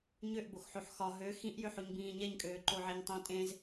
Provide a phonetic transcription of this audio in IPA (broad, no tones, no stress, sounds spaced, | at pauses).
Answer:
ɲ ø ʔ b o x ħ o ħ x ɒ ɦ ø x ĩ ʔ j ø ħ o ɲ b ĩː ɲ ɛ ɲ kʼ øː ǃ o ʕ e ɲ tˤ ĩ tʼ ẽ z